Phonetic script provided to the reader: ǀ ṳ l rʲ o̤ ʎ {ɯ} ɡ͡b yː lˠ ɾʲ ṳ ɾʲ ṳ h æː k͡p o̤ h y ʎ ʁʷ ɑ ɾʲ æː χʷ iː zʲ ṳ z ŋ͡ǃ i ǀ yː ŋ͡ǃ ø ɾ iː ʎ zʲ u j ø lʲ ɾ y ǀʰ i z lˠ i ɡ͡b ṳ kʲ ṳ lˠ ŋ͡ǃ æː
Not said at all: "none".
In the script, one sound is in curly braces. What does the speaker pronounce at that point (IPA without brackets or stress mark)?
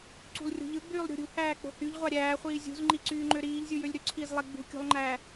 ɯ